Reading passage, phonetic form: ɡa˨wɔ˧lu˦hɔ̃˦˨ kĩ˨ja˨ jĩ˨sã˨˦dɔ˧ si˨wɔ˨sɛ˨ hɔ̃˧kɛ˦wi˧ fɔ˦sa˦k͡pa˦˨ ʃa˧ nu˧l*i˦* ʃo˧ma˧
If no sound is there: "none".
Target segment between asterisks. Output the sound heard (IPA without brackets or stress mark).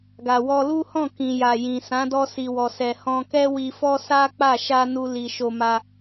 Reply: i˨